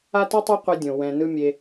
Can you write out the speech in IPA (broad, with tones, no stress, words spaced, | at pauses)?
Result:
a˥tɯ˥tˤa˥ qʷɛ˧dʲõ˩ wɛ̃˩ nɯ˥ mʲe˩